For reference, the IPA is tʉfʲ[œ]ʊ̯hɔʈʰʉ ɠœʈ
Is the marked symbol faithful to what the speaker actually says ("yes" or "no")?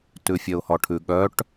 yes